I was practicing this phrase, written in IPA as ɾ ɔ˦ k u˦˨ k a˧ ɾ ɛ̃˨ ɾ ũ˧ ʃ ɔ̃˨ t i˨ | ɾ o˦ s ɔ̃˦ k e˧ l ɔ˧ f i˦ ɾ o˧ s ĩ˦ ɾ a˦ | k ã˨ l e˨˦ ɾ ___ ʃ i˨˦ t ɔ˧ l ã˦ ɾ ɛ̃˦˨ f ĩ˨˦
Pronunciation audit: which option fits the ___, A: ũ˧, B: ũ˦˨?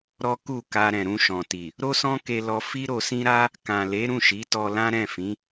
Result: B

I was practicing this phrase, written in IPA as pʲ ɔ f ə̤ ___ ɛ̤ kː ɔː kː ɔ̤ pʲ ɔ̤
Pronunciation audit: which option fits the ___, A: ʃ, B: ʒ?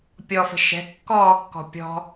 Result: A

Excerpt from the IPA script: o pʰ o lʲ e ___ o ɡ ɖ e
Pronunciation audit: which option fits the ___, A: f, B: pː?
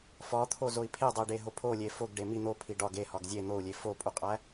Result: A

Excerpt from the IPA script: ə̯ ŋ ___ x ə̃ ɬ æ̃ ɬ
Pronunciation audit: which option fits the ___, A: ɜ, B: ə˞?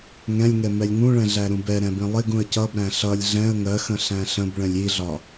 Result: A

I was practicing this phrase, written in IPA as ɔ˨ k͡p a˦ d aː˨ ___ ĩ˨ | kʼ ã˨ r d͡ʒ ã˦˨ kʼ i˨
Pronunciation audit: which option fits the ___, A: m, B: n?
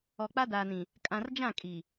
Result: B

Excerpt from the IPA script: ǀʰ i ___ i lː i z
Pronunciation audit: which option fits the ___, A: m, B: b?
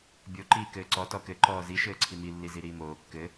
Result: A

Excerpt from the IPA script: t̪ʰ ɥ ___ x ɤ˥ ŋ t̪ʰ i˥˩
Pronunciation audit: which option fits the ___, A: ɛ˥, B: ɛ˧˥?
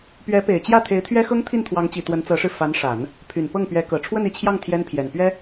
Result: A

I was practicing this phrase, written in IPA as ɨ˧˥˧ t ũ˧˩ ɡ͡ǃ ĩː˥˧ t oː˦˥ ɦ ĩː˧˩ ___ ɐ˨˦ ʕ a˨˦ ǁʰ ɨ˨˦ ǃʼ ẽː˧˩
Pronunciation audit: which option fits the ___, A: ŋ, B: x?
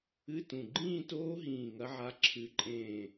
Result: A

